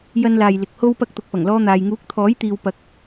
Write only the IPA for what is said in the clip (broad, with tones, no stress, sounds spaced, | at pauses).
j ɐ˧ n l aː˨ j l ɪ˨ k̚ h o˧ w p ɐ˧ k̚ t̪ ʊ˨ k̚ p ɐ˨˩ ŋ l ɔː˧ n̪ aː˨ j ŋ uː˨˥ k̚ t̪ʰ ɔː˨˥ j t̪ iː˨ w p ɐ˨ k̚